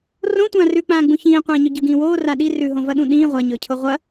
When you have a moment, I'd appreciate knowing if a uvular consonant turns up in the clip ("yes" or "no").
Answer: yes